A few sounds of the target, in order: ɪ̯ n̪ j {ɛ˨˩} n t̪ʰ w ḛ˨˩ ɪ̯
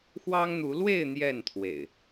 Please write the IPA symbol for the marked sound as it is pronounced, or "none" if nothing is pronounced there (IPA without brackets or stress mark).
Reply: ɛ˥˨